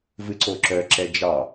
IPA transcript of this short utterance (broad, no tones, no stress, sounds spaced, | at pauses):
v ɨ ǀ o ǁ œ ǁ ɛ d͡ʒ ɑ